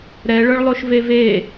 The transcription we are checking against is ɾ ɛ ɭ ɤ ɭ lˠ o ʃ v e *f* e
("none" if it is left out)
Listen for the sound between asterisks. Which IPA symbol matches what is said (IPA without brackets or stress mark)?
v